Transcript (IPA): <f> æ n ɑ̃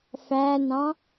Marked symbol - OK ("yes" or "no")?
yes